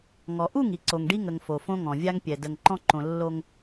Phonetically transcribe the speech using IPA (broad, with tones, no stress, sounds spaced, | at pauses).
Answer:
ŋ ɔ˨ ʔ u˦˨ ŋ i˨ ǀ o˨ ŋ ɖ i˦ ŋ ə˨ ŋ f o˨ f õ˦ ŋ ɔ̃˨ vʲ a˦ ŋ pʲ ɛ˨ d ə˨ ŋ ǃ ɔ̃˦ ǃ õ˨ lː o˦ ŋ